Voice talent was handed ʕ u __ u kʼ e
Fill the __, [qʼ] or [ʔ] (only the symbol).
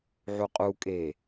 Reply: qʼ